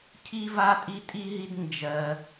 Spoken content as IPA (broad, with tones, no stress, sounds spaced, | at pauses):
cʰ i˥ v a˥ tʼ i˥ tʼ i˥ ɦ i˥ d n d͡ʒ ɜ˥